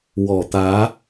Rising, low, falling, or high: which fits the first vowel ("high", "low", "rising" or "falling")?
low